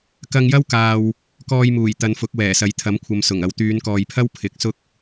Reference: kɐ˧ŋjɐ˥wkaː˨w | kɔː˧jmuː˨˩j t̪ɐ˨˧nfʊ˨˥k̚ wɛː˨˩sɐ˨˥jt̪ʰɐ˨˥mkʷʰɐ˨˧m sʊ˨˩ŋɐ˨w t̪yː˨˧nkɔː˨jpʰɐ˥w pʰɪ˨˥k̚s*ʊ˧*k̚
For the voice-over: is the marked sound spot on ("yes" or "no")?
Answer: no